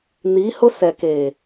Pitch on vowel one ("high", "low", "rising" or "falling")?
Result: rising